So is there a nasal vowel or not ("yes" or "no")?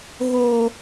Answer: no